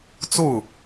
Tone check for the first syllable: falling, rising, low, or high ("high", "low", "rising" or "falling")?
falling